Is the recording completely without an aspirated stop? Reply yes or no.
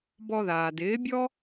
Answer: yes